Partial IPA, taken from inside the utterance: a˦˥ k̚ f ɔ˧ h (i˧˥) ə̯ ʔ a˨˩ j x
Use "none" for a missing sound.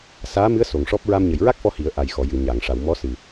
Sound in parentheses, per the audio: i˨˩˦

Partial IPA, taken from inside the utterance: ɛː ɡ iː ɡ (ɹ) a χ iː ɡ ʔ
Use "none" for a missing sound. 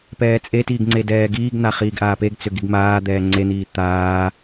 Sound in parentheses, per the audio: n̪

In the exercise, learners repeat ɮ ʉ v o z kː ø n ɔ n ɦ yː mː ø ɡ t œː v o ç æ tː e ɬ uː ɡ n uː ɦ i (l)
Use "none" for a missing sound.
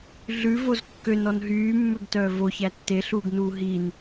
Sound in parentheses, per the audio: n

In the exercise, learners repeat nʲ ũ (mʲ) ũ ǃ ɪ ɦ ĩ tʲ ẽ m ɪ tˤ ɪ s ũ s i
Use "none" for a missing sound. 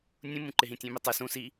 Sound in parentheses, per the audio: m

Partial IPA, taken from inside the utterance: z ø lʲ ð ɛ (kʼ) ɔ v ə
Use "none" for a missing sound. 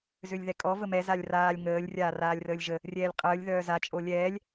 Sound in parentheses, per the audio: kʼ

